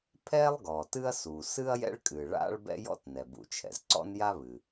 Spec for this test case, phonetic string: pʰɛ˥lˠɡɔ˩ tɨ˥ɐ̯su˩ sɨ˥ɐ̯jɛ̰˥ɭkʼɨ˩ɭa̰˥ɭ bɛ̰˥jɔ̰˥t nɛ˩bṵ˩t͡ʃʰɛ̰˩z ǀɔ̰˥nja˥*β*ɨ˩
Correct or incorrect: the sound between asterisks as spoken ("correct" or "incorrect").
correct